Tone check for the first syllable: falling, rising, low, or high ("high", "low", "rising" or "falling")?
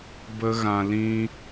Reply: high